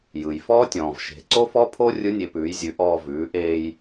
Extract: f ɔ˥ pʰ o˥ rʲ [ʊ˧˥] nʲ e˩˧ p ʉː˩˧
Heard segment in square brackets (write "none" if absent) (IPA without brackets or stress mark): ɯ˧˥